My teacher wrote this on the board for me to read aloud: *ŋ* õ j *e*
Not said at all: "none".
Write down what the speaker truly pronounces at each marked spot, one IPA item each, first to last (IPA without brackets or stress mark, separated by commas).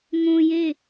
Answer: ŋ, e